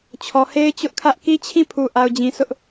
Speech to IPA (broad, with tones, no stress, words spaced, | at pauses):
t͡ɕʰɔ˨he˦ɪ̯t͡ɕʊ˦ʔkʰä˦ʔ ki˦t͡ɕʰĩ˦˨pʰu˨ ʔa˨ʊ̯d͡ʑĩ˨ sʊ˦ʔ